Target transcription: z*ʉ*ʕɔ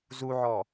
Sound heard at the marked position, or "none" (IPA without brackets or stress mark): u